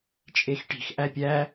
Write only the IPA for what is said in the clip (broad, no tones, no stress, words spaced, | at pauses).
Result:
t͡ʃʼexʈi̤x ʔæpʲæ